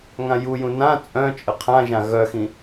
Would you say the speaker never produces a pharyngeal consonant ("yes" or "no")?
yes